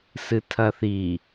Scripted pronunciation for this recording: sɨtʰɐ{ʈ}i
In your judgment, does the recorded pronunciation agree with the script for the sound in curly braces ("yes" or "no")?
no